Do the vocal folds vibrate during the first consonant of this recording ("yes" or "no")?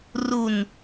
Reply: yes